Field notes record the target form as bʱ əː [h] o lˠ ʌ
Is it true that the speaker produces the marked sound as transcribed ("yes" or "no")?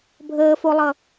no